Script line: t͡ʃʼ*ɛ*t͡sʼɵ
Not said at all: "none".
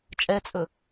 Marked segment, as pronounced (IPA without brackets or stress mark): ɛ